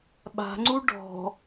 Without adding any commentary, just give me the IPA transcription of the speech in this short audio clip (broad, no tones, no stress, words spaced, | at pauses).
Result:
ɓa̤ŋ͡ǀu ɖɔ̤